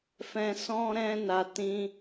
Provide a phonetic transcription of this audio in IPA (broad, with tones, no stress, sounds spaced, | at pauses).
f ɛ̃˧ s ɔ̃˦ ɾ ɛ̃˦ n a˧ t ĩ˦